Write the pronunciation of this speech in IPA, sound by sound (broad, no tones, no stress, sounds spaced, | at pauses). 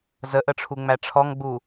z ə ʔ ə ʈ͡ʂʰ u ŋ͡m æ ʈ͡ʂʰ ɔ ŋ ɡ͡b u